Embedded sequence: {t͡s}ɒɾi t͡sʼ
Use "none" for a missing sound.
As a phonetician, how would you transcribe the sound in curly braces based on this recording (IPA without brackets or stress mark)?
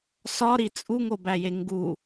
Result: s